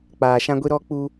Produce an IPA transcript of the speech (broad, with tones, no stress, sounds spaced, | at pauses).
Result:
k͡p aː˨ ʃ ã˦ ɡʷ i˦ ɾ ɔ˦ k͡p u˦